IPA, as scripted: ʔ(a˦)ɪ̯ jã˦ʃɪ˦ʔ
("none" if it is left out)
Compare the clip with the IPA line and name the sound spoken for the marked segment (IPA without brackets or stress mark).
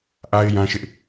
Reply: a˦